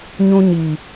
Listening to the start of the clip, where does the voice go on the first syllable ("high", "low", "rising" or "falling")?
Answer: high